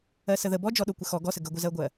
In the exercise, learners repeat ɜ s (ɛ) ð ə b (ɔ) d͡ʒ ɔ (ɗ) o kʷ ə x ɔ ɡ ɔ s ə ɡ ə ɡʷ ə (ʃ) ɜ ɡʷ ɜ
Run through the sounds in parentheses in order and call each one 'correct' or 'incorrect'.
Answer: incorrect: ə, correct, correct, incorrect: z

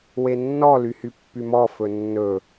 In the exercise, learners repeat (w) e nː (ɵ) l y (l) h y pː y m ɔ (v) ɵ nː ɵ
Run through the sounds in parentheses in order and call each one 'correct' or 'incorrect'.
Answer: correct, incorrect: ɔ, incorrect: none, incorrect: f

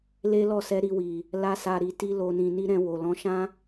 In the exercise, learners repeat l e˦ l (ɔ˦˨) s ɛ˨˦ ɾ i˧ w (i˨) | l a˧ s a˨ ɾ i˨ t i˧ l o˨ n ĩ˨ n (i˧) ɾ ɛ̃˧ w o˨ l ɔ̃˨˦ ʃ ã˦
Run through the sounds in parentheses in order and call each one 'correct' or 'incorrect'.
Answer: correct, correct, correct

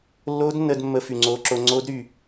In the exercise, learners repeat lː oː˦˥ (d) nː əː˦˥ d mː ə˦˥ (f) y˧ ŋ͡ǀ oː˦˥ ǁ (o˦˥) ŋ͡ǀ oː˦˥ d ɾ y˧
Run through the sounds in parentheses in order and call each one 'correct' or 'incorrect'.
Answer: correct, correct, correct

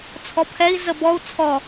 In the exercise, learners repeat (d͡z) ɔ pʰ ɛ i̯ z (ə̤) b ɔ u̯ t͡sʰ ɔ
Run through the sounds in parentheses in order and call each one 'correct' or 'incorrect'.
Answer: incorrect: t͡sʰ, incorrect: ə

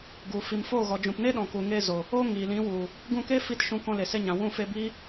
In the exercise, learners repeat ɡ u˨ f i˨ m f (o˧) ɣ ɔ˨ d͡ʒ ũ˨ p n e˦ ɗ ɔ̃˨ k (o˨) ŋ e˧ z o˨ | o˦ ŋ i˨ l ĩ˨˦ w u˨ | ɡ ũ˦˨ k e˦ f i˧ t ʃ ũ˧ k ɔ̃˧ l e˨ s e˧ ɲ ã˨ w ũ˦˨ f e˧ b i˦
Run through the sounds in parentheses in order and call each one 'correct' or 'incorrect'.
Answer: incorrect: o˦˨, incorrect: u˨

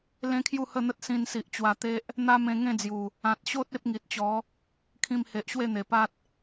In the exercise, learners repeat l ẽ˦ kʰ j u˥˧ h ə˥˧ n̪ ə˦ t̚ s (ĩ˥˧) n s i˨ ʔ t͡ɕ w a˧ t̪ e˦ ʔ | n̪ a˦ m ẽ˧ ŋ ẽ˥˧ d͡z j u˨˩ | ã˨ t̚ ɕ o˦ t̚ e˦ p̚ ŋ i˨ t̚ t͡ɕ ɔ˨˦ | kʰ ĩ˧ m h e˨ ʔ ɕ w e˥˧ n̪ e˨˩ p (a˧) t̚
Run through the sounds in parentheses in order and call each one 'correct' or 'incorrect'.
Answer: incorrect: ĩ˧, incorrect: a˦

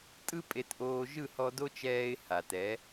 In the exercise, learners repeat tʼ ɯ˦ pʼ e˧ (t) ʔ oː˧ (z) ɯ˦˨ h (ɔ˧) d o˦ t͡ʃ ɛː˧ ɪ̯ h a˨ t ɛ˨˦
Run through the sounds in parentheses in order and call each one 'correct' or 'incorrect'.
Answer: correct, incorrect: ʒ, correct

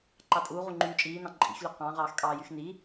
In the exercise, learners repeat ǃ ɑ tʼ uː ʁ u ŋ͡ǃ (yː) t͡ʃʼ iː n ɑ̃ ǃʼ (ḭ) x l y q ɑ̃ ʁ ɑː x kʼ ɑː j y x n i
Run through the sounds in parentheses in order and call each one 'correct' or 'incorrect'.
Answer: correct, correct

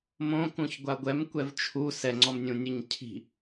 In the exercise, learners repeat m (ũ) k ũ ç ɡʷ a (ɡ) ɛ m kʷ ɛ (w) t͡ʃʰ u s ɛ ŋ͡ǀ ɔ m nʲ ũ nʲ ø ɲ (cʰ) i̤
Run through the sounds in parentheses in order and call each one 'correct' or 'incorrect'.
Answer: incorrect: õ, incorrect: ɡʷ, incorrect: v, correct

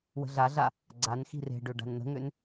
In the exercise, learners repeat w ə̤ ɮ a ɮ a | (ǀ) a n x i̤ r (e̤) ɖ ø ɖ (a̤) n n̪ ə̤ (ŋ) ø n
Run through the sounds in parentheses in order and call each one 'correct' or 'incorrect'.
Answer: incorrect: ɡ͡ǀ, correct, correct, correct

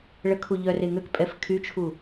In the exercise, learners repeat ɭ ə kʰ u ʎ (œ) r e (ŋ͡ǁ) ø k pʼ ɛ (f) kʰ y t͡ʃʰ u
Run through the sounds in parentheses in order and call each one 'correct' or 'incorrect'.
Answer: correct, incorrect: ŋ, correct

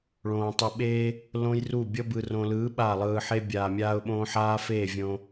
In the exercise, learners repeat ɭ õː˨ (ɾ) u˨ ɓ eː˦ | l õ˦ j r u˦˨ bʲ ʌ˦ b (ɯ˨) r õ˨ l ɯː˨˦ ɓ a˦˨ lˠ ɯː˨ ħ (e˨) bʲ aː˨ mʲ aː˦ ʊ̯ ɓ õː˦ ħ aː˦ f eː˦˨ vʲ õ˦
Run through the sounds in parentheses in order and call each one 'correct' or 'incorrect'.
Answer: incorrect: tˤ, correct, incorrect: e˦

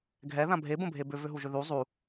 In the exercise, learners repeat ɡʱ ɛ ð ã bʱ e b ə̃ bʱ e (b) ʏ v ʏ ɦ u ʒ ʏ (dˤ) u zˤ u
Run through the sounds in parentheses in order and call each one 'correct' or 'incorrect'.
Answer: correct, incorrect: ð

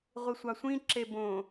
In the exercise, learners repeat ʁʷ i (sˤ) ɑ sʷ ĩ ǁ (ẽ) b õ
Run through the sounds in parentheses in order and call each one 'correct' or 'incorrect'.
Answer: incorrect: sʷ, incorrect: e

